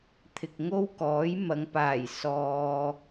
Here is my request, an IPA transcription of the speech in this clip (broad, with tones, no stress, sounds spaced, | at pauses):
t̪ʰ ɪ˨ k̚ ŋ o˥ w k ɔː˨˥ j m ɐ˨˧ ŋ p aː˨˩ j s ɔː˨